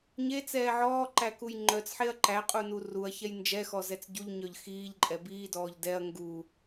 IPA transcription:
ɲet͡sɛː ʕɔːǃækuj ŋ͡ǃœt͡sħeɐ̯ ǃæqʼunu ruɐ̯çɛj nd͡ʒɛxɔzɛt͡s ɟuʎɲœʎ xiːʎǃʼɛ biːdɔːʎ dɛɐ̯ ŋɡu

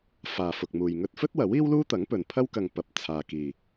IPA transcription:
faː˨fʊ˨k̚muː˨j ŋɵ˧t̚fɵ˥t̚wɐ˨˥w iː˥wluː˥t̪ɐ˨˥ŋpɵ˨n pʰɐ˥wkɐ˨ŋpɐ˨p̚ t͡sʰaː˨ kiː˨

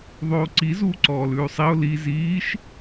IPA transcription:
ðˤoːǀi zuːǀɔːlʉːsˤiʊ̯ li ziːʃ

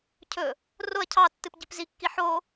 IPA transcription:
cʰɵ | roɐ̯ cʰɑtːɨpɟip zikːi ħo

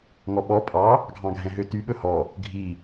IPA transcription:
ŋɔɓɔ pʼɑ | ɡʱɑ̃ɡʱɛ̃ɦøty ɓɵhɔ | ɡʱi

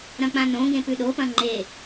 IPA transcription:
ɾɐ̃k͡pãnõɡẽ pʉɗopɐ̃ ŋ͡ǃe

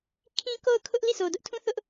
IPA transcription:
kʰĩ˦ko˦˨ʊ̯ kʰʊ˦ʔ li˦˨so˨dʊ˦ʔtʰũ˦ θʊ˦ʔ

